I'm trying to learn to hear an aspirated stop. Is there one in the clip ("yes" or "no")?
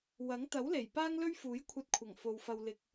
yes